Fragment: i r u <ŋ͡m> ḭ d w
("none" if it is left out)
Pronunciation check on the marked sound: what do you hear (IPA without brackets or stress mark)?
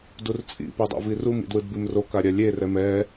m